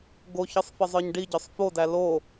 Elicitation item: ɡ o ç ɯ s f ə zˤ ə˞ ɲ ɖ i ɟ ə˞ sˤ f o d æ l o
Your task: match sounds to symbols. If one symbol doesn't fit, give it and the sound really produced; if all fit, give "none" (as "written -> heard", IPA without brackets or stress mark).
s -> sˤ